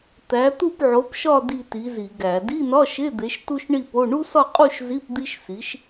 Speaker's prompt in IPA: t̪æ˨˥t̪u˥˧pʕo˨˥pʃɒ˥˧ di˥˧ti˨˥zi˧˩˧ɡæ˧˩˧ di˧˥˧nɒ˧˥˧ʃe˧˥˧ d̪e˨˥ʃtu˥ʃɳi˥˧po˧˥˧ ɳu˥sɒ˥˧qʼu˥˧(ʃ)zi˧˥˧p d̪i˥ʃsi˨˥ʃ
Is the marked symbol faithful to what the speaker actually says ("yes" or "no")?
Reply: yes